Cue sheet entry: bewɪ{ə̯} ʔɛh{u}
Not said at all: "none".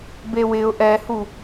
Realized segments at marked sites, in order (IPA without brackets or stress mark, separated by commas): ʊ̯, u